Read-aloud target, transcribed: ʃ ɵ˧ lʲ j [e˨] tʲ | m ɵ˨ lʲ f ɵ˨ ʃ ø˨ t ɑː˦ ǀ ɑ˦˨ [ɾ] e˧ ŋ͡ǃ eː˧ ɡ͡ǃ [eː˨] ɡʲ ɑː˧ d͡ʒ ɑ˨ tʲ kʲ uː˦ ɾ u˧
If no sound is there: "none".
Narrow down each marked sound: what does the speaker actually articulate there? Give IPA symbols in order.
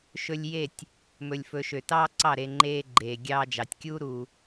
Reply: e˦˨, ɾ, eː˨

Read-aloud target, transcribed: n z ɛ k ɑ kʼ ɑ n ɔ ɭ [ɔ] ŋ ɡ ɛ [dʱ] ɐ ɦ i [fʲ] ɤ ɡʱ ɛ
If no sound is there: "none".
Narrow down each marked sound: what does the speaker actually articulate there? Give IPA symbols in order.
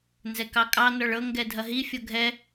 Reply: ɤ, dʱ, fʲ

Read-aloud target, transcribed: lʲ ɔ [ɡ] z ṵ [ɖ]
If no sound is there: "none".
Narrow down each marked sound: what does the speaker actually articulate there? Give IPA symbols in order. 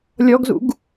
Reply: ɡ, ɡ

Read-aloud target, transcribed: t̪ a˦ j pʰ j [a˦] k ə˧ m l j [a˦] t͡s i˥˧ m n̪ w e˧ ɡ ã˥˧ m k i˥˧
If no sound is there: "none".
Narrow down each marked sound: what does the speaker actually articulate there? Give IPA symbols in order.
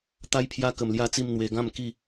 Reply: a˦, a˦

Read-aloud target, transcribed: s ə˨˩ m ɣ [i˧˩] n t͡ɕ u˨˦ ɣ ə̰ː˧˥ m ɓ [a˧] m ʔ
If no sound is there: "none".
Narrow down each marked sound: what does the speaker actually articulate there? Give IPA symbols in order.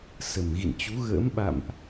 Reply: ḭ˧˨, a̰˧˨

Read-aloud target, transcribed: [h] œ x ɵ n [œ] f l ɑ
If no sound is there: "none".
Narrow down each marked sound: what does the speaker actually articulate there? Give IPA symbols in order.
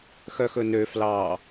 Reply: x, ø

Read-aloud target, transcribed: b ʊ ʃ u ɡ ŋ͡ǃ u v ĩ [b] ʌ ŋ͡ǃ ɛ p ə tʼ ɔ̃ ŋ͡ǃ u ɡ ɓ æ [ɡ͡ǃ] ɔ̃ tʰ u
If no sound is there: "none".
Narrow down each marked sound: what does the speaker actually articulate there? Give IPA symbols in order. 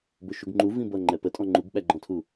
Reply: b, ɡ͡ǃ

